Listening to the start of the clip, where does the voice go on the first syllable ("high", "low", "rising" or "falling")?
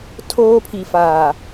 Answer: high